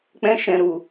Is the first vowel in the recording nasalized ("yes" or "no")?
yes